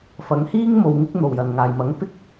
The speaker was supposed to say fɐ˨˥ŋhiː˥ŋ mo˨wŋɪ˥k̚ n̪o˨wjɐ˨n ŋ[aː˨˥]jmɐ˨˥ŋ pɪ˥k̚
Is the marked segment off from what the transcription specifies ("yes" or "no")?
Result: yes